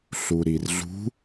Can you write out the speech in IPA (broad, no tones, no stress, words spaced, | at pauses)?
ɬuɾirɮṳ